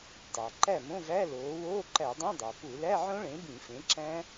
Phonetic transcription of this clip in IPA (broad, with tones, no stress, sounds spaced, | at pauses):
tˤ æ˩ ǃ æ˥˩ m õ˧˥˧ v æ˧˥˧ l oː˩˥ w oː˧˥˧ ǃ æ˧˩˧ dˤ õ˧˥˧ dˤ æ˩ p u˧˩˧ l æ˧˥˧ ʕ õ˦˥ ɭ ẽ˩˥ b ĩ˧˩˧ f ẽ˩˥ ǁ æ̃˦˥